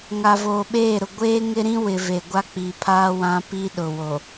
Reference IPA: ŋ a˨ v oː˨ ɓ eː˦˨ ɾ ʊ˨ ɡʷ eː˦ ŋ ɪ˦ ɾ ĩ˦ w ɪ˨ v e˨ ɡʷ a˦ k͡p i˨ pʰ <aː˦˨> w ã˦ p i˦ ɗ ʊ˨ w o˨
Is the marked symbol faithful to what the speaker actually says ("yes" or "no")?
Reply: no